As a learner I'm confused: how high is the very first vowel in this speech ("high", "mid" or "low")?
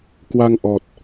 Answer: low